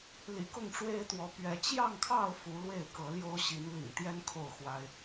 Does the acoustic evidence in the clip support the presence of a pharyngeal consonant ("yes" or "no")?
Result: no